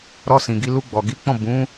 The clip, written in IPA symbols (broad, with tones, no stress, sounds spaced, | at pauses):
ɾ ɔ˧ s ĩ˨ ɡ i˧ l u˧ ɡ͡b ɔ˨ ɡ i˨˦ k͡p ɔ̃˦˨ b ũ˨˦